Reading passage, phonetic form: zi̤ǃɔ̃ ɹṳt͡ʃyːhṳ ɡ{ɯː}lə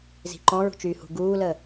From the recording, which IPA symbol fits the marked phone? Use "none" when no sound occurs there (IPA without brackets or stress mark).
uː